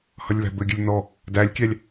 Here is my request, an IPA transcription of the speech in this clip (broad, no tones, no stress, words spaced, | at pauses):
hʌlʲβæ̤bɘɡʲɘlʲ n̪ɔ | dælʲkʲælʲ